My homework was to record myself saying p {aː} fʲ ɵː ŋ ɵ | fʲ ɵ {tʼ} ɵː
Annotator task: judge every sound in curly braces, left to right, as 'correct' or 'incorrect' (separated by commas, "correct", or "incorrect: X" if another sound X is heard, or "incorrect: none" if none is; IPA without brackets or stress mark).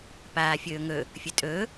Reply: correct, correct